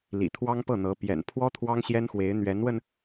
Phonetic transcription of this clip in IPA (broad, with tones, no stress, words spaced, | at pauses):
lḭ˨˩t̪ʰwɑ˥ŋpɤ˥˩n̪ɤ˧˥ pjɛ̰˨˩npʰwɔ˥ t̪ʰwɑ˥ŋɕjɛ˥nxwe˧˥ɪ̯ n̪ɥɛ˧˥nwə˧n